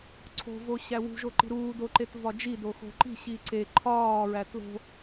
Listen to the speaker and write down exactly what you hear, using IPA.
ǀʰ o̤ v o ɕ æ w ṳ ʒ o ǃ i̤ ɾ uː d o ǃ e t v ɒ d͡ʒ i d o x o̤ ǃ i̤ ɕ i ǀ e ǃʰ ɒː ɹ æ t l o̤

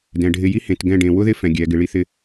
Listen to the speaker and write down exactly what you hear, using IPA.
d ɛ̃˨ ɖʱ ɪ˦ j i˦ h ẽ˨ t ɡ ɛ̃˦˨ ɖ ẽ˨ w ʊ˦ ð ɪ˦ f ɛ̃˨ ɡʲ ɛ˨˦ ɡ ɪ˧ ɭ i˦ θ ɪ˦

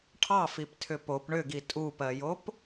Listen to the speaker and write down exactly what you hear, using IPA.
ʈʰ ɑ f i p tʰ ʏ p o p ɳ ʏ ɡ i tʼ u p ɜ j o p

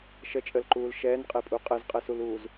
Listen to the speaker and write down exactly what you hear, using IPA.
ʃ ə t͡ʃʼ ə l ǃ uː l ʃ ɛː n qʼ e pʼ u qʼ ɘ z qʼ ɘ s u l uː z

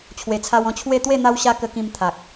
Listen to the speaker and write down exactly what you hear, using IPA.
t͡ɕʰ w e˨˩ t͡sʰ a˧ w ɔ̃˧ t͡ɕʰ w e˥˧ t̪ w e˥˧ n̪ a˧ w ɕ a˧ k ə˧ k ĩ˧ m t̪ʰ a˨ k̚

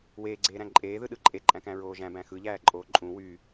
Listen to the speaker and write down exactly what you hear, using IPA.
w eː ɡ͡ǀ eː ɾ æ̃ ǃʼ eː ð ɯ ɗ ɯ ǃʼ e ǃʼ æ̃ k æ̃ ɹ oː ʒ æ̃ b æ̃ x ɯ ʎ æː ǃʼ oː ǃʼ ũ w y

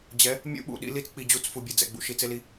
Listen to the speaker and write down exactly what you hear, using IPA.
d͡ʑ ɛ˨˦ | mʲ ṵ˦ ɓ ṵ˨ ɗ ḭ˦ l i˦ t͡s k͡p i˨ d͡ʑ u˦˨ t͡s f u˨ bʲ ɛ˨ d͡z ɛ̰˨ ɡ͡b ṵ˨ ʃ i˨ t͡s e˦ l i˦

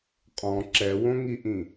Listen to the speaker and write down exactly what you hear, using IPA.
qʼ ɔ̃ ǁ ɛ w õ ŋ i ʔ ĩ

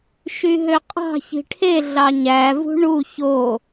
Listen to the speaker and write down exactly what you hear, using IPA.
ʃ y ɦ ø qʼ ɑ̤ ç i̤ ʈʰ e ɮ ɑ ɲ æ v ṳ ɳ u ç o

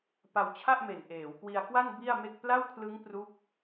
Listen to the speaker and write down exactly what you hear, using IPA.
p a˧ w t͡ɕʰ a˥˩ ʔ m e˨˩ n ʔ eː˩˦ w k w i˧ a̯ k w a˥˩ n b i˥˩ a̯ m e˥˩ k̚ p l a˥˩ w kʰ l ɯ˦˥ ŋ p r u˦˥ k̚

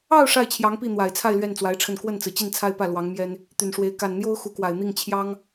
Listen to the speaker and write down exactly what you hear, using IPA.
ɑ˥˧ ʊ̯ ʂ a˥˩ ɪ̯ t͡ɕʰ j ɑ˧˥ ŋ p i˥˩ n̪ w a˨˩ ɪ̯ t͡sʰ a˥˧ ɪ̯ l ɥ ɛ˥˩ n t͡s w a˧˥ ɪ̯ ʈ͡ʂʰ ə˥˧ n k w ə˥˩ n t͡s ɹ̩˩ t͡ɕ i˥˩ n t͡sʰ a˥ ɪ̯ p ä˥˩ l w ɑ˧˥ ŋ m j ɛ˥ n | t̪ y˨˩ n ʂ w e˧˥ ɪ̯ k a˨˩ n n̪ j o˥ ʊ̯ x u˧˥ k w a˨˩ ɪ̯ n̪ i˥˩ ŋ t͡ɕʰ j ɑ˥ ŋ

